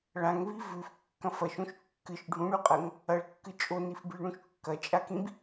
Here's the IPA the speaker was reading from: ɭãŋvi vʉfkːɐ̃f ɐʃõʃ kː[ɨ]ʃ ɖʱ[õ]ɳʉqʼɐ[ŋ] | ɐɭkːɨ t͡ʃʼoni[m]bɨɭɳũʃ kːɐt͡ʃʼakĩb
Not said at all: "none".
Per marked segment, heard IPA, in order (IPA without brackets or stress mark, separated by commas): ɨ, ũ, ŋ, f